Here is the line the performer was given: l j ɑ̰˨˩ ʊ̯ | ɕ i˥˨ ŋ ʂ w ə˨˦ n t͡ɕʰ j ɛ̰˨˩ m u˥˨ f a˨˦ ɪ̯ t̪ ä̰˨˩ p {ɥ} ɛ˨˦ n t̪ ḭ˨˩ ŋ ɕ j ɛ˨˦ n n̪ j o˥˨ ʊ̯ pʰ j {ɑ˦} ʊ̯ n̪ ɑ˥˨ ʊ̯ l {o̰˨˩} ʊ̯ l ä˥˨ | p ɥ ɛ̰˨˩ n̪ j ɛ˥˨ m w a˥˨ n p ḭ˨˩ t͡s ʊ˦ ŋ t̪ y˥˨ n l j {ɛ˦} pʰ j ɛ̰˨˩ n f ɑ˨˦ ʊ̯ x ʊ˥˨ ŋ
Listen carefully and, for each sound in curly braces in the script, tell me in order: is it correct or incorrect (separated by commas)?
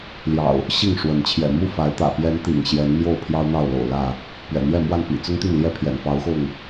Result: incorrect, correct, correct, correct